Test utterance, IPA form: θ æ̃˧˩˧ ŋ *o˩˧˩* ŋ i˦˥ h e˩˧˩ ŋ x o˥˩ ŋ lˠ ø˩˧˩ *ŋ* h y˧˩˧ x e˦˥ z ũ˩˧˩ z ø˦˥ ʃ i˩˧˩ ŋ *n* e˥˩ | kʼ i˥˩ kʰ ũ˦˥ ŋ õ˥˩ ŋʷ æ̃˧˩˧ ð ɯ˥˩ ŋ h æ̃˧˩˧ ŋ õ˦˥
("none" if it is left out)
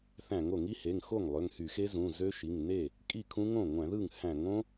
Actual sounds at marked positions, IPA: o˧˩˧, ŋ, n

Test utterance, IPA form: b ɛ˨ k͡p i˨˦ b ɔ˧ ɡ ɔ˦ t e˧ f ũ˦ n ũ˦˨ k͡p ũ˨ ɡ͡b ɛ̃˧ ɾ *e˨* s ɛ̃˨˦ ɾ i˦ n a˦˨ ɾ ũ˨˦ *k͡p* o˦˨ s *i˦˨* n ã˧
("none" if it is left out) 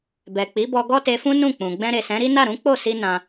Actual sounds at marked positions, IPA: e˨, k͡p, i˧

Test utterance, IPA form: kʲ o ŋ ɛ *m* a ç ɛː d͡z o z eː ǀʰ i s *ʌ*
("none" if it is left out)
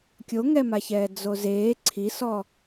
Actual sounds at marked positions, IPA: m, ɔ

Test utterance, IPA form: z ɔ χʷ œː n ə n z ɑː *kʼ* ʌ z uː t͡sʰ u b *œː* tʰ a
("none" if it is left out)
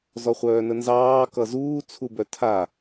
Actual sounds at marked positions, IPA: k, œ

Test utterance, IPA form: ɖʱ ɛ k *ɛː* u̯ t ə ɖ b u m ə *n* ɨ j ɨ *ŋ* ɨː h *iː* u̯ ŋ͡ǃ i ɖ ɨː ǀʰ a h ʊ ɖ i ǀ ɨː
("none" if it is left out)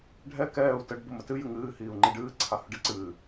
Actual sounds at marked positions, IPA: ɛː, t, ŋ, iː

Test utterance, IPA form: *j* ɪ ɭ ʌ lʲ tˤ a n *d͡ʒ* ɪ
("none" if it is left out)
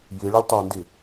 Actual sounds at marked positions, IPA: j, d

